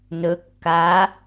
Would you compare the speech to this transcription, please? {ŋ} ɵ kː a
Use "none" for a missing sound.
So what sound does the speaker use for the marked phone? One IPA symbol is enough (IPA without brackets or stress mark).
n